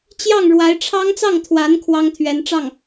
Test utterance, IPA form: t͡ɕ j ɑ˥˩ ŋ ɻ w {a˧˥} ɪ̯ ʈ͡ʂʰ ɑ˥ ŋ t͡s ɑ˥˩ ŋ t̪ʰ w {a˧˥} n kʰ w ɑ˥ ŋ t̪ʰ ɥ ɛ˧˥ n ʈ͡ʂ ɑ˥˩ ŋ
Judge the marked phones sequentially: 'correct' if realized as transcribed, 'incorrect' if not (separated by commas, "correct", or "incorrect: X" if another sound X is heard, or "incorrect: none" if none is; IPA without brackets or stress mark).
correct, correct